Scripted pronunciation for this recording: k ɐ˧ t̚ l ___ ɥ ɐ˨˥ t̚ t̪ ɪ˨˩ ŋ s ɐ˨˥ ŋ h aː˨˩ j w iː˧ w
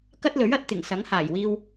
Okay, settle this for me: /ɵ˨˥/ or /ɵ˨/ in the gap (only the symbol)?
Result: ɵ˨˥